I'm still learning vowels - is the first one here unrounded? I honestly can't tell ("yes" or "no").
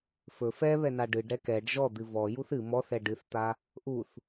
no